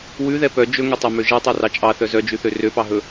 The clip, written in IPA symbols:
wʉðɛ pœ d͡ʒɵŋøtˤɛmø ʒɛtˤɛrɑ t͡ʃʼɑθœ zœd͡ʒʉθø røpɑɦɵ

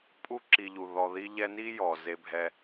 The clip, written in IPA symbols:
pʼu˥ǁi˨ʎu˩ ðɔ˨ði˦ ʎɛ˦ni˥jɔ˩ ze˨bʱɛ˨

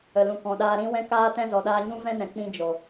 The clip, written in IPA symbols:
ə˨lũ˨kɔ̃˨ ɗaː˧ɾĩ˦wɛ̃˦kaː˦ tɛ̃˧zɔ˨ ɗaː˧ɲũ˦ vɛ̃˦nɛ̃˨k͡pĩ˧ d͡ʒo˨

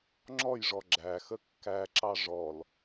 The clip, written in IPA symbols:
ŋ͡ǁɔjʐɔ ɡ͡ǁæxə kːæǁɑ ʐɔl

